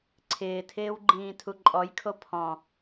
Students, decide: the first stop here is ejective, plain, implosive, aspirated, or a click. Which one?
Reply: click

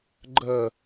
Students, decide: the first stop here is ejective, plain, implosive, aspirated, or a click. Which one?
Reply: click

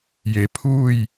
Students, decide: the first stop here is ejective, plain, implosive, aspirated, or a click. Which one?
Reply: aspirated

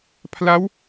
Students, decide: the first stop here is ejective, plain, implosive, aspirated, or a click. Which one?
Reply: aspirated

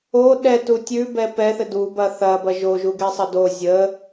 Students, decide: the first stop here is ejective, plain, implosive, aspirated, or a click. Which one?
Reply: implosive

